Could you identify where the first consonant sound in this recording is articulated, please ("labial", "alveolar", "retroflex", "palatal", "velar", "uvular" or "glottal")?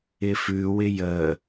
labial